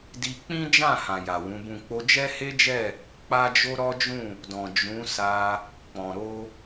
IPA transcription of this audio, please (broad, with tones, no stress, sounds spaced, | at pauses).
d i˧ k͡p ĩ˦ d͡ʒ ã˦˨ h ã˨ j a˨ w ũ˨˦ b ũ˦˨ k͡p o˧ d͡ʒ ɛ˦ h e˦ d͡ʒ ɛ˦˨ | k͡p a˦ d͡ʒ o˦ ɾ ɔ˦ d͡ʒ ũ˦˨ | d ɔ̃˨ d͡ʒ ũ˨˦ s a˧ | k͡p ɔ̃˨ ɾ o˧